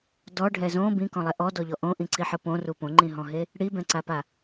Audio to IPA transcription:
d ɔ ɖʱ ɛ z õ b ĩ k ɔ̃ lˠ ɛ ʔ ɔ d ɔ ʎ ɔ ʔ õ ʔ ĩ ǀ i ħ ɯ p õ r u p õ ŋ͡ǃ ĩ ɦ ɔ̃ ɦ e | ɽ i b ɛ̃ ǀ a p a

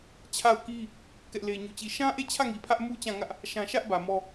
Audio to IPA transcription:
t͡ɕʰ a˦˨ ʊ̯ k i˦ | k ɛ˦ ʔ l e˦ ɲ u˦˨ t͡ɕ i˦˨ ʃ ã˦ ʔ e˦˨ t͡ɕʰ ä˦˨ ŋ i˨ pʰ ä˦ ʔ m u˦ t͡ɕ ã˦˨ ŋ ä˦ ʔ | ʃ ã˦ ʃ ä˦ ʔ b ä˨ m ɔ˦

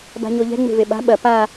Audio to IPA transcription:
b a̤ ɲ o ʎ ɛ̤ ŋ͡m e̤ v e ɓ a̤ ɓ ɐ p a

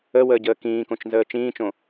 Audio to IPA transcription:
ə w əː ɟ əː k ĩː k õ t͡ʃ n z əː t͡ʃ ĩː t͡ʃ õ

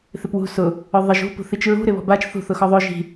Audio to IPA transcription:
θ ɪ p w ṳ s ʊ | ʊ ðˤ ɪ ʒ ṳ p ṳ θ i t͡ʃ ɹ ṳ ɾ ɪ β ɔ̤ b a t͡ʃ θ ṳ θ ʊ x ɔ ðˤ o ʒ i̤

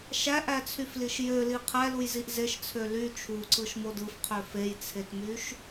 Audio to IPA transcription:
ʃ æ ʔ æ t͡sʰ y f l i ʃ j ø l i qʰ æ l u j z i ʔ z e ʃ t͡sʰ ø l y t͡ʃʰ u ǀ ɯ ʃ m o d ɯ f qʰ ø f e j t͡sʰ e t m y ʃ

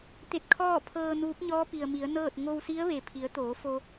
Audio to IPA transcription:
t̪ e˧ t̚ kʰ ɔː˥˨ pʰ ɤː˧ n uː˧˥ p̚ ɲ ɔː˧˥ p i˩ ə̯ m i˩˧ ə̯ n ɤː˥˨ t̚ ŋ o˧ w s i˧˥ ə̯ ʋ e˩ pʰ i˩˧ ə̯ t̪ oː˩˧ f o˧

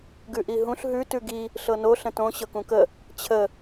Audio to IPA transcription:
ɡ ʉ ʔ i ɦ ũ ɬ ɦ ʉ t ʉ ɡ i | ɬ ɤ n o ɬ ə̃ t õ ɕ ɤ k ũ k ə | t͡ɕʰ ə

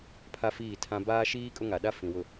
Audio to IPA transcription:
pʰ a˦ f iː˦˨ tʰ ã˦ b aː˦ ʃ iː˦ kʼ ʊ˦ ŋ a˨ ɗ a˦ f ĩ˨ w ʊ˨

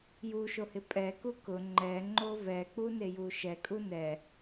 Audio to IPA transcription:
j u ʃ o h ɪ pʼ ɛ k u k ʊ ŋ͡ǃ ɛ ŋ͡ǃ o v ɛ k͡p u n e j u ʃ ɛ kʼ u n ɛ

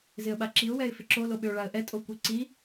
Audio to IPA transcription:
z ɪ ə̯ ɓ a ǁ i ʊ̯ w ɛ ɪ̯ f ɪ ǁ o l o ɓ ʏ ʊ̯ ɭ a ə̯ ʔ ɛ tʼ o kʷ i ǀ i

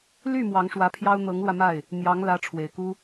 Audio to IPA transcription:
l y˥˩ m w ɑ˧˥ ŋ ʂ w ä˧˥ pʰ j ɑ˥ ʊ̯ n̪ ɤ˧˥ ŋ l w ä˧ m a˥˩ ɪ̯ | n̪ j ɑ˧˥ ŋ l ä˧˥ ʈ͡ʂʰ w e˨˩ ɪ̯ k u˥

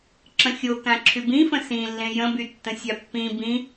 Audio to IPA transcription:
ǁ ə̃ xʲ o k ã ǁʰ y b ĩ f ə̃ s ĩ lː ẽ j ə̃ b y tː ə̃ sʲ a pː ĩ b ĩ

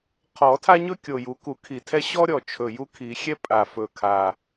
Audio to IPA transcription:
qʰ ɔ˨˩˦ tʰ a˥ ɲ ɵ˥ kʲ o˨˩ j u˨˩˦ k u˨˩˦ kʰ i˨˩ tʰ ɛ˥ ɕ ɔ˥ ɾʲ ɔ˨˩ t͡ʃʰ ɵ˨˩ j u˥ kʰ i˨˩˦ xʲ ɛ˥ pʼ a˨˩ f ɵ˨˩ kʰ a˨˩

